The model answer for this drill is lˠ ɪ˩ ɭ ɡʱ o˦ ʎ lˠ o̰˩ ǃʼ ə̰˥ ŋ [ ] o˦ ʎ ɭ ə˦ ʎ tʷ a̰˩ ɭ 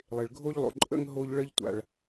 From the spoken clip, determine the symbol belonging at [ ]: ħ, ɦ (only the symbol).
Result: ɦ